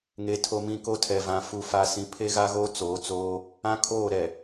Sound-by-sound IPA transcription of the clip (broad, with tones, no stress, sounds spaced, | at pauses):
ŋ e˨ tʰ o˨ m ĩ˨ k o˦ tʰ ɛ˨ v ã˨ f u˨ f a˨ s ĩ˨ pʰ e˦ ɣ a˦ ɣ oː˦ t͡s oː˨˦ t͡s oː˦ | ã˦ kʰ oː˦˨ ɾ ɛ˨